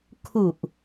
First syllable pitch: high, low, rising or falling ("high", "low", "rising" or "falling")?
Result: low